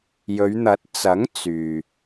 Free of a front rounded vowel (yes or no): no